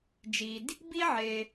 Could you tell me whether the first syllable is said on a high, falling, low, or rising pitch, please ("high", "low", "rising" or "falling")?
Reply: low